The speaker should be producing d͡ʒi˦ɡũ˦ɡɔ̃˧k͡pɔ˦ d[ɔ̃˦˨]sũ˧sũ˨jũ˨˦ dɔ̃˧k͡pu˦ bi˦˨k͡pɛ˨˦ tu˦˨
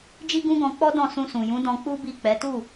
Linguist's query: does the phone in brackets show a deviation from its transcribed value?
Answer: no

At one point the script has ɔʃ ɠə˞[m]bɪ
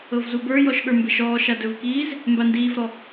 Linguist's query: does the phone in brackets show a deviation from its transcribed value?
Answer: no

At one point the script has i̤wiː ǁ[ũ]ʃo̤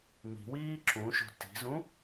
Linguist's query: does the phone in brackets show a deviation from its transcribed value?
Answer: no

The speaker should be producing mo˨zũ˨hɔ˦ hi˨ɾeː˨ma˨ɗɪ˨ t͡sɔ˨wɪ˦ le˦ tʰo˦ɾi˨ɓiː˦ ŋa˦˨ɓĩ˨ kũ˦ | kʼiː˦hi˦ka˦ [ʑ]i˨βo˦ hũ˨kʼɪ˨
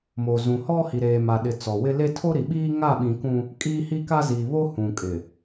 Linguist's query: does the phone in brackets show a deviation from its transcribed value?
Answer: yes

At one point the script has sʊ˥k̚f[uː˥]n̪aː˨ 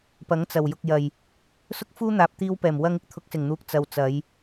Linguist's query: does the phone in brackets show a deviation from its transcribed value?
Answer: no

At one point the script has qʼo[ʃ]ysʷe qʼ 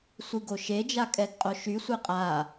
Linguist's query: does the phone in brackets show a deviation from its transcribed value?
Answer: no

